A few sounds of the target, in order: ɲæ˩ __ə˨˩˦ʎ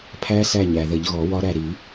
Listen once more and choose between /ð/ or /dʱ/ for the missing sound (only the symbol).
ð